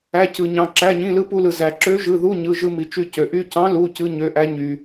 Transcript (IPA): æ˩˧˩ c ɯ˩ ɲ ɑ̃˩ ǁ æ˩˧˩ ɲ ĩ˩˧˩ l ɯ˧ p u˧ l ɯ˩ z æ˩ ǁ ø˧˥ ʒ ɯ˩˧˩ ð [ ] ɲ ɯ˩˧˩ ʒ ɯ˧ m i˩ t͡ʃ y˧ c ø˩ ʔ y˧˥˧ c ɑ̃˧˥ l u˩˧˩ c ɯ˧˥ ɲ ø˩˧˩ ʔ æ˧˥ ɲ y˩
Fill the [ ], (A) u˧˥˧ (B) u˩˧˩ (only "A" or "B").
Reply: A